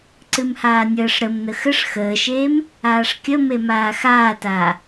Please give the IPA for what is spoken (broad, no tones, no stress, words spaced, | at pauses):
ǀɨmhaːnʲəːʂ ɾəm nəxəʂ xəːʃeːm | aːʂkʲə memaːxaːtaː